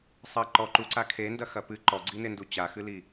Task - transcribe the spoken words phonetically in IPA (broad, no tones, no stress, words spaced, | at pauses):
sˤɐ ǃɔ ǃuǀa kʰendɐxɐ pɨ ǃɔɡ͡ǀinendu t͡ɕaxɨli